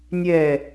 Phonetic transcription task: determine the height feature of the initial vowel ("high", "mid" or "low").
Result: mid